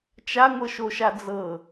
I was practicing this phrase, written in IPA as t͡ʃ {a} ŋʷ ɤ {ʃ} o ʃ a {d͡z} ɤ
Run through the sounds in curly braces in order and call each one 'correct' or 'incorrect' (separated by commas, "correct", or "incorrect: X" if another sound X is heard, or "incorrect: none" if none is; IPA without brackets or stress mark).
correct, correct, correct